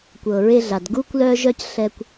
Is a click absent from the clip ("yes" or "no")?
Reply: yes